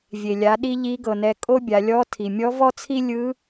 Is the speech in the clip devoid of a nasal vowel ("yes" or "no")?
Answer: yes